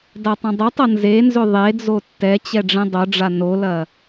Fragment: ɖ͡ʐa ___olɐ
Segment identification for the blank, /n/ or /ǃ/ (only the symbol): n